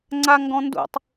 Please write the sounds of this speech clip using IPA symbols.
ŋ͡ǀ a ŋ ɡ ɔ̃ n d ṵ tˤ

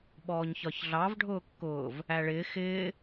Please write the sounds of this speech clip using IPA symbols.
ɓ ɔː ɲ ç ɒ ç ɮ ɑ v ɖʱ ʊː kː ʊː v | æ ɭ ɪː x ɪː

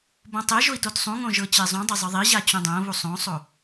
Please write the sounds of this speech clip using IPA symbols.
b õ tˤ e ʒ o i̯ t o t sˤ ũ ŋ õ ʒ ɤ t͡ɕ e zˤ ũ dˤ e zˤ ɯ ðˤ i ʑ a t͡ɕ ũ dˤ õ β u sˤ õ sˤ o

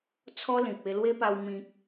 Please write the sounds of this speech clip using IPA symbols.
t͡sʰ ɔ˦ l ĩ˨ p̚ e˧ l w e˦ p a˧ w m ĩ˨ k̚

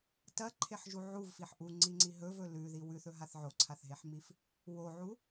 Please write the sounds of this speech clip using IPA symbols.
t ɐ ǃʰ e ħ ʒ u ʕ u v f i ħ ʔ u ŋ͡ǀ i ŋ͡ǀ i ɦ ɵ v ɵ l ʉ ð i w ʉ θ ɵ ɦ a θ ʕ o ǀʰ a θ ɦ e ħ m i f | w o ʕ u

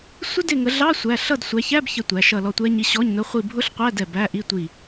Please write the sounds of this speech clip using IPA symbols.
sʷ ə˦˥ d ɪ˦˨ ŋ ə˨˦ ɮ ɑ˧˥˧ sʷ æ˧˥˧ ɬ ʌ˦˨ d sʷ æ˨˦ ç æ˧˥˧ b ç ə˦˨ tʷ æ˨˦ ʃ ʌ˦˨ l ɔ˦˨ tʷ ɛ˦˥ ɲ i˧˥˧ ɕ ɔ˧˥˧ ɲ n ʊ˧˥˧ χʷ i˦˨ bʱ ʊ˦˥ ɬ qʷ æ˧˥˧ d ɛ˧˥˧ b æ˧˥˧ ʔ i˧˥˧ tʷ i˦˨

